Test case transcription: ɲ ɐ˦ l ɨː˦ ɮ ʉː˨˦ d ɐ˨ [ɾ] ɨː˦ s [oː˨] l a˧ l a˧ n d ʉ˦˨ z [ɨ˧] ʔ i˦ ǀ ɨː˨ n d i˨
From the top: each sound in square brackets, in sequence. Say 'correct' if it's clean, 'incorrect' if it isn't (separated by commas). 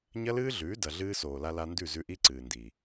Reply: incorrect, correct, incorrect